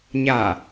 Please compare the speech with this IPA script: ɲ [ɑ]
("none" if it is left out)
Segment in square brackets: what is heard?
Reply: a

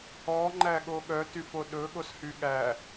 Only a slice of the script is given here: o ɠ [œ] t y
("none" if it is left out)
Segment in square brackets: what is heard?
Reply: œ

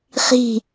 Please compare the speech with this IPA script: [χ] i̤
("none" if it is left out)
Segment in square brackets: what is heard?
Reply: χ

